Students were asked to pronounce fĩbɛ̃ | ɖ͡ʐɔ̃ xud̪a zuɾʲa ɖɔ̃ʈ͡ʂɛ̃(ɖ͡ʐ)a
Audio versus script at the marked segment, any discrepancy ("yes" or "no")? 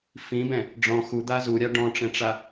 yes